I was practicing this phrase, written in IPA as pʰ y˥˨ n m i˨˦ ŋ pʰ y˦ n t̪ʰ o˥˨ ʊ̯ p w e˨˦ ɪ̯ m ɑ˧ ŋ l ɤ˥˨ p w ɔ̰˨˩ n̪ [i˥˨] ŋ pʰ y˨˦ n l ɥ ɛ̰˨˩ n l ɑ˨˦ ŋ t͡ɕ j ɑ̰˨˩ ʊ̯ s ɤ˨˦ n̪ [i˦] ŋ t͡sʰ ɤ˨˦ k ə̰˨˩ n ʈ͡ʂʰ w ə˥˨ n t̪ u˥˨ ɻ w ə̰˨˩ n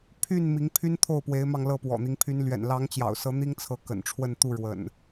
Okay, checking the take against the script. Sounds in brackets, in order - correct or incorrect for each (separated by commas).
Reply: incorrect, correct